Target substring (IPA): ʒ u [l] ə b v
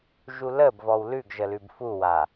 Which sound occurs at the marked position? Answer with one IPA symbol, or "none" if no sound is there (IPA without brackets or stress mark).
l